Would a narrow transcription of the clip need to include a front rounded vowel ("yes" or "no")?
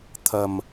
no